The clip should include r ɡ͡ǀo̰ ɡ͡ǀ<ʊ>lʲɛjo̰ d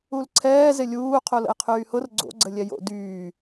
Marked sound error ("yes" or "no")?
yes